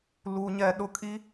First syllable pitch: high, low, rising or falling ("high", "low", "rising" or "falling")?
high